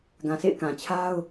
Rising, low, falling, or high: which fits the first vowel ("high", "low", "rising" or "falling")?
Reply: low